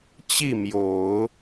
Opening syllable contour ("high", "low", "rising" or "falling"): falling